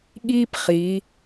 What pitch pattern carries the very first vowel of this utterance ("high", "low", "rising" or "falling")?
high